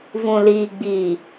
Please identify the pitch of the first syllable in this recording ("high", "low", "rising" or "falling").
low